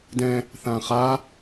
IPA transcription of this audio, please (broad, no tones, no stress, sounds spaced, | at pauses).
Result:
d ɛ̃ | θ ã χ a